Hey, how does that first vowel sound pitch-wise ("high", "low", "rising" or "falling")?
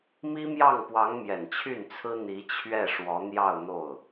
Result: high